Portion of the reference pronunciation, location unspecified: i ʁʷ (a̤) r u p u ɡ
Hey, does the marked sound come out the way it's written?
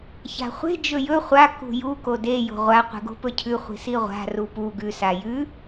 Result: yes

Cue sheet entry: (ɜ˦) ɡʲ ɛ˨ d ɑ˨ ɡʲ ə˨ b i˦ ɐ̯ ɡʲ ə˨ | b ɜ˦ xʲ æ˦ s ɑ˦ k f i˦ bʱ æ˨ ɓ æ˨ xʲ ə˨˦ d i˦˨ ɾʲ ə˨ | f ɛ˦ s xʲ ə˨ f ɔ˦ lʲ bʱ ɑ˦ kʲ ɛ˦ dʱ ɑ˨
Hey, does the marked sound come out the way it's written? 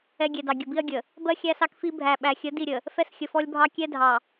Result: no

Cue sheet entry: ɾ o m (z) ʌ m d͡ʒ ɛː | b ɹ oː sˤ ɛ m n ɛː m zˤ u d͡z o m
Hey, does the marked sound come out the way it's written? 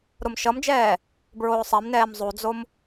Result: no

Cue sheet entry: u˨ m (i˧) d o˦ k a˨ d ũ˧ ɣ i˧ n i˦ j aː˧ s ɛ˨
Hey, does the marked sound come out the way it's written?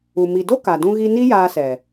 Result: no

